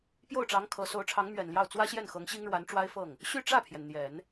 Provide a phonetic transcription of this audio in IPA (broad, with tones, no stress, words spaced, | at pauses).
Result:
pjo˥˩ʊ̯ʈ͡ʂɑ˧˥ŋ kʰɤ˧˥ so˧˥ʊ̯ʈ͡ʂʰɑ˧˥ŋ mɥɛ˨˩nljɑ˥˩ʊ̯ t͡swä˥ɕjɛ˥˩nxɤ˧˥ŋ ɕi˥ŋɻwa˧˥nʈ͡ʂwa˥ɪ̯fɤ˥˩ŋ | ɕy˥˧ʈ͡ʂä˥˩pʰjɛ˩n n̪jɛ˨˩˦n